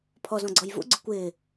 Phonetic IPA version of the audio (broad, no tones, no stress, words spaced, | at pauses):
pʰɔzɔ̃ɡ͡ǀɔj vṵɡ͡ǀʊ kʷɪː